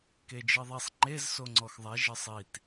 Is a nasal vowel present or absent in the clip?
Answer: absent